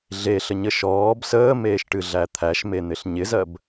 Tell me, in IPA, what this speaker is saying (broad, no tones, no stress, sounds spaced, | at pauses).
ɮ e ɬ ə ɲ ə ʃ ɔː b s əː m eː ʃ ʈ ɨ ɮ æ t̪ʰ æ ʃ m e n̪ ɪ ɬ ɲ ɪ z ɜ b